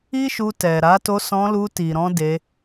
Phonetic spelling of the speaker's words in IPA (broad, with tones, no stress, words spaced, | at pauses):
i˦ʃu˧ tɛ˨ɾa˨˦ to˧sɔ̃˧lu˧ ti˨ɾɔ̃˧ de˧